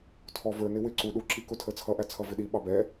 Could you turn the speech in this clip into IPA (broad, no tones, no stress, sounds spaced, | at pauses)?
tʰ ɔ v ə˞ n ɪ w ɪ ǀ u ɗ u ǁ i k ʊ tʰ ə t͡sʰ ʌ ʔ æ t͡sʰ ʌ v ɪ ɗ i ɓ ɑ b ɛ